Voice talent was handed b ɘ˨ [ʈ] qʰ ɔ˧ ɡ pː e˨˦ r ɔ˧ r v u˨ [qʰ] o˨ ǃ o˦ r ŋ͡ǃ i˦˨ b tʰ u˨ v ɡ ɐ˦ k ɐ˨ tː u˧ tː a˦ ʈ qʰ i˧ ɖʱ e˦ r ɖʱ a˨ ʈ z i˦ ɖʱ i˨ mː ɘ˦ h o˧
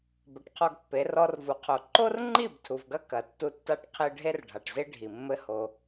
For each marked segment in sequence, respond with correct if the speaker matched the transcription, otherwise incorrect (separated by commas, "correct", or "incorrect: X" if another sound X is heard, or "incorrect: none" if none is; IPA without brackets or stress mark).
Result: correct, correct